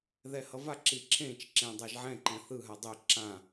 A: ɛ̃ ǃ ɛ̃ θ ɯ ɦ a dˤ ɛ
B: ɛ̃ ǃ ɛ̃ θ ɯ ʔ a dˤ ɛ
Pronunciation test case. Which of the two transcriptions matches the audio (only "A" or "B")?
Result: A